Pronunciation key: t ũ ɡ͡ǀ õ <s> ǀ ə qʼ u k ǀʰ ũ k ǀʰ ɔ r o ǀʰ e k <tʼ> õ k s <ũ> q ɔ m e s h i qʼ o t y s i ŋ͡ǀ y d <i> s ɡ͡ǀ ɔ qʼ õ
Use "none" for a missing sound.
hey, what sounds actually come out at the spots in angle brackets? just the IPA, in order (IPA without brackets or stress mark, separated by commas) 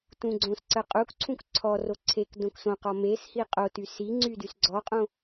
s, d, õ, y